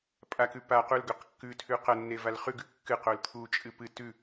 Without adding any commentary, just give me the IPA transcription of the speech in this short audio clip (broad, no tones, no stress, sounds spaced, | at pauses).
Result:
pʼ a k ʉ p a q u l ɡ ɵ q kː ʉ tʰ ʉ q ɐ nː e v a l χ ʉ ɡ ʉ kː ɨ q o l t̪ʰ u t͡ʃʼ ɨ p ɨ t ʉ